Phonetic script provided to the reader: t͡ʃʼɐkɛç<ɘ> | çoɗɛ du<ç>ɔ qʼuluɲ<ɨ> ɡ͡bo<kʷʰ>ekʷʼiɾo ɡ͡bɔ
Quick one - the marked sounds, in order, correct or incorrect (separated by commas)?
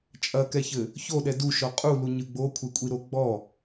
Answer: correct, incorrect, correct, correct